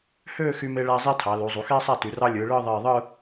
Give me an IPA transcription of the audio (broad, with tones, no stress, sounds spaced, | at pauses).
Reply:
h øː˥˧ x y˧ m e˧ ɭ æ˧ zˤ i˥ tʰ ɑ˩˧ l u˩˧ zˤ u˩˧ x eː˥ sˤ æ˥˧ t y˩˧ r ɑ˥ lʲ ɯː˩˧ ɭ ɯː˥˧ ðˤ eː˧˩ ðˤ ɯː˥˧